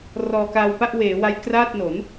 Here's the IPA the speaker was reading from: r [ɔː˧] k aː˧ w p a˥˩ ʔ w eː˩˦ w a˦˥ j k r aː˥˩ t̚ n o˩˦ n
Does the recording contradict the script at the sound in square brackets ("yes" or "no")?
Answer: no